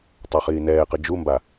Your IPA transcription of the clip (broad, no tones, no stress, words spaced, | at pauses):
tˤaχiːnɛːqɘ d͡ʒumba